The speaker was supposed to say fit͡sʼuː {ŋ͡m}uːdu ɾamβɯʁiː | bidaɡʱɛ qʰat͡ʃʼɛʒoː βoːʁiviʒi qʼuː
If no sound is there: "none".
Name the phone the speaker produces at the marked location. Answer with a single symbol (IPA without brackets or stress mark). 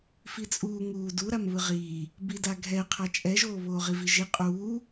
ŋ